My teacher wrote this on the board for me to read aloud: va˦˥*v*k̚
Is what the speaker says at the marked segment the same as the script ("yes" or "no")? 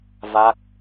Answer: no